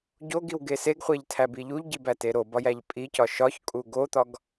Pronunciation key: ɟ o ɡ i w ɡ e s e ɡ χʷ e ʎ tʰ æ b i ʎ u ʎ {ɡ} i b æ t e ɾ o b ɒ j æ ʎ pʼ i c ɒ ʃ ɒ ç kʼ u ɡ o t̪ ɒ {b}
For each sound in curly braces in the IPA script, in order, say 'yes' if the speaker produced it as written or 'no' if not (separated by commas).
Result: no, no